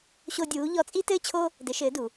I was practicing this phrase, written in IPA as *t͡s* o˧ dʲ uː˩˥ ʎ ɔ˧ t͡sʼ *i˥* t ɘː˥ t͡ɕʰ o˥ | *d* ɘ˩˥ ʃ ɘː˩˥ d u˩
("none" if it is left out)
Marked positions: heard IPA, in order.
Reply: ɕ, i˥, d

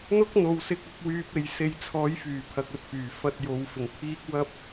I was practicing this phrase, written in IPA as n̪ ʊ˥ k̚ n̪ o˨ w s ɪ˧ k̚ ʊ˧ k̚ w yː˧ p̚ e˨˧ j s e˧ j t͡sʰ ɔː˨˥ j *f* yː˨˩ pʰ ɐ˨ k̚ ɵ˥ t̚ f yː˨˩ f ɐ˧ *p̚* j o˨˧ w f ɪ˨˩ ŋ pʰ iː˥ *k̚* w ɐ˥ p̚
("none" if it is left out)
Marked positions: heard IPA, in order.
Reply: f, t̚, k̚

